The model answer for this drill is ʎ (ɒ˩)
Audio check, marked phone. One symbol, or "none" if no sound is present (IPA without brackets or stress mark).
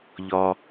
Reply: ɒ˩